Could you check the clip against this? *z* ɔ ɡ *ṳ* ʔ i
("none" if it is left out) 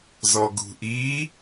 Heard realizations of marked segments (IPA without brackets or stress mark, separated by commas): z, ṳ